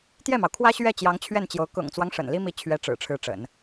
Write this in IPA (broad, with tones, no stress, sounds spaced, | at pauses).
t̪ j ɛ˥˩ m ɑ˩ ʊ̯ kʰ w ä˥ ɕ ɥ ɛ˥˩ t͡ɕ j ɑ˧˥ ŋ t͡ɕʰ ɥ ɛ˥˩ n t͡ɕ j o˧˥ ʊ̯ k ʊ̰˨˩ ŋ t͡s w ɑ˦ ŋ ʂ ə̰˨˩ n l i˥ m i˧˥ t͡ɕʰ ɥ ɛ˧˥ ʈ͡ʂ ɻ̩˨˩ ʈ͡ʂʰ ɻ̩˧˥ ʈ͡ʂ ə̰˨˩˦ n